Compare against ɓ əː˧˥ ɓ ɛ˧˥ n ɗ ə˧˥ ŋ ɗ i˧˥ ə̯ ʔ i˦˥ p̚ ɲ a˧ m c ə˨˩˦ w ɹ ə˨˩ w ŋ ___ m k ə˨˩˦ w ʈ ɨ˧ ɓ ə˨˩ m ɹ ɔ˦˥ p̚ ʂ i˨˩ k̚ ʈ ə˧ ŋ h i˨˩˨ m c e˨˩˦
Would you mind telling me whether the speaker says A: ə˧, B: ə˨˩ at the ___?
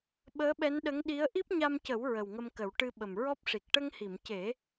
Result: A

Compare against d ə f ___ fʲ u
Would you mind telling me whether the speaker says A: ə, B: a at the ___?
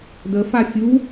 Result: B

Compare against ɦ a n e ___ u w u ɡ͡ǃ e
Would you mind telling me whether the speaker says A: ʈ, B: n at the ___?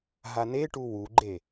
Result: A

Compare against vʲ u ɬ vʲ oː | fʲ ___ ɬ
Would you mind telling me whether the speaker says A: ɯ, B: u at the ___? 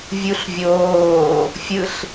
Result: A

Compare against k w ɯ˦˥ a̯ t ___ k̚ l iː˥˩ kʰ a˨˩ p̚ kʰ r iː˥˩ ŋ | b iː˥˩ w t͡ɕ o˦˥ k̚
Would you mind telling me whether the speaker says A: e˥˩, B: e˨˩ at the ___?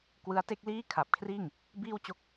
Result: A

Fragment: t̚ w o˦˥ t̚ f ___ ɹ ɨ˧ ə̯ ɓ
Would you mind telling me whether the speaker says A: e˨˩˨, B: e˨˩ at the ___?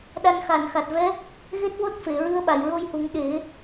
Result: A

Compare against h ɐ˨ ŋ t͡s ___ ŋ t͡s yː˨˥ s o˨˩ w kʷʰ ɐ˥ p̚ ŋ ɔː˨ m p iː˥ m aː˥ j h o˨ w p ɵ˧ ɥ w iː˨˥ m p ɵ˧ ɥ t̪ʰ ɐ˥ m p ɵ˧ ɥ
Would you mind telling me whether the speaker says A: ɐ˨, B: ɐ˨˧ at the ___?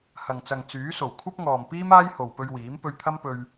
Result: A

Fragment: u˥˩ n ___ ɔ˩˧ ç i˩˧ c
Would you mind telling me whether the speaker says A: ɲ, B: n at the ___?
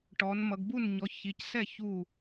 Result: A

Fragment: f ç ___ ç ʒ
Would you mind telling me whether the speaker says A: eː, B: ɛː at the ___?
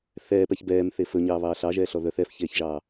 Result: A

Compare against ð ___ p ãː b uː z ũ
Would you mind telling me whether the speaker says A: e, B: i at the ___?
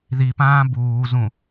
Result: B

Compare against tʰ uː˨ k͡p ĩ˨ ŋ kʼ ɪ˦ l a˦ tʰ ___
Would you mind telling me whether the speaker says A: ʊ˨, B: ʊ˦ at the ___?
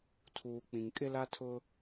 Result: B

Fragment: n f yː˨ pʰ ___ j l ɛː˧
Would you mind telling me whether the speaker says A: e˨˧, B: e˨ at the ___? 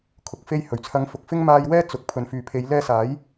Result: A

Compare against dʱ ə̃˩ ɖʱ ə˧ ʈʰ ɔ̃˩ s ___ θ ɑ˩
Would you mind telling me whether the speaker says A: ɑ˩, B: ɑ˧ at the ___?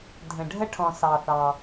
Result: A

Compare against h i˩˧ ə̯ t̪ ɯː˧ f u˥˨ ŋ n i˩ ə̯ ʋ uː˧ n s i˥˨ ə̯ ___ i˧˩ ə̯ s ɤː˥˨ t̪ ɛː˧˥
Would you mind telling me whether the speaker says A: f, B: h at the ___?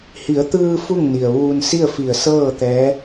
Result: A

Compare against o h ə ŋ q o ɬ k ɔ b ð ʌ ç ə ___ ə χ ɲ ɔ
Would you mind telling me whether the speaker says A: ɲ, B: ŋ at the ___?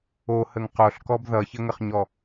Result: B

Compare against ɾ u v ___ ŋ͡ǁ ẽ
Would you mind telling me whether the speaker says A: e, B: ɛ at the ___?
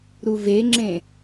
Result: A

